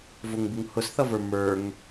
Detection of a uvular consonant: absent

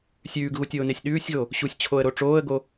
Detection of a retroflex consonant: present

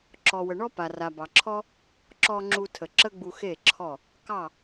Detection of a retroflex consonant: present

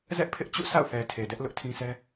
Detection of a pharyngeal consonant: absent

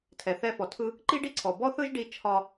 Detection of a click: present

